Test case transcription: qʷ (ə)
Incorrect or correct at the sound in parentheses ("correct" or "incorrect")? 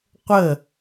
correct